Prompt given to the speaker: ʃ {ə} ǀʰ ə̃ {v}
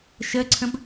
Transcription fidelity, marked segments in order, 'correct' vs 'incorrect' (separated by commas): correct, incorrect